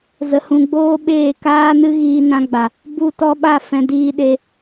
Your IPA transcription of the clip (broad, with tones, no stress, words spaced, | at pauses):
zə˨hũ˨ɡ͡boː˧ ɓeː˦˨kaː˦nɨ˦ ɣiː˧nã˧ɡ͡ba˨ | bu˦˨tɔ˦ɓa˦˨fɛ̃˧ diː˧ɗe˧